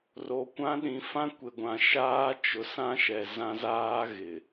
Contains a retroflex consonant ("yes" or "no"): no